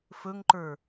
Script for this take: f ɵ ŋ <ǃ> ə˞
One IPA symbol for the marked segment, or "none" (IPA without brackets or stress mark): ǃ